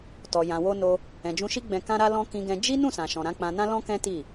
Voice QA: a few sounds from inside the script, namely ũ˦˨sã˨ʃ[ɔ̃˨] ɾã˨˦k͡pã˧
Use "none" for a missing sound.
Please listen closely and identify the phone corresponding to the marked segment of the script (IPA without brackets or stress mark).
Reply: ɔ̃˨